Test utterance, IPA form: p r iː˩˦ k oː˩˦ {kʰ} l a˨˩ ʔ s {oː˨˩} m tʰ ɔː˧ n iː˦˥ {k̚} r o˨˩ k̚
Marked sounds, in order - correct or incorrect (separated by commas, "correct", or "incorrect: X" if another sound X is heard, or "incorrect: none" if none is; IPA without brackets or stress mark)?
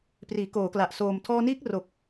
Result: incorrect: k, correct, correct